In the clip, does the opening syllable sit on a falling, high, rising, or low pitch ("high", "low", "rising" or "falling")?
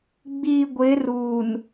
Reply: low